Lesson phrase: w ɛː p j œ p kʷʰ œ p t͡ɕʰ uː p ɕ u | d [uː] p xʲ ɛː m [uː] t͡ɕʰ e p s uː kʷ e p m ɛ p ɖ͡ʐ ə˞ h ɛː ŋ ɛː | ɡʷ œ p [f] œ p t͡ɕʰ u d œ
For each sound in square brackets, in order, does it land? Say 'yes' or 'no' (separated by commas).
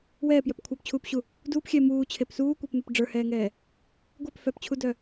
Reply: yes, yes, yes